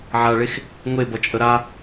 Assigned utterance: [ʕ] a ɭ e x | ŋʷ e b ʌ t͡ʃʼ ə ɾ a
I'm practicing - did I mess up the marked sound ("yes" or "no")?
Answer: no